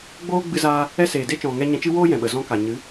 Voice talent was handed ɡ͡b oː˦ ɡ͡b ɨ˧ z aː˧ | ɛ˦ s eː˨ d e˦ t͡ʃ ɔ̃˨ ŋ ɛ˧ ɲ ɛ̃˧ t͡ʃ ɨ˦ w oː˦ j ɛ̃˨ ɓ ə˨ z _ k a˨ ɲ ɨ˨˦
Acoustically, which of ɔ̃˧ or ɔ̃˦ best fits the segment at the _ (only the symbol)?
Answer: ɔ̃˦